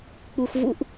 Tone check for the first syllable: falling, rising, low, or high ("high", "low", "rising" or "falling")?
low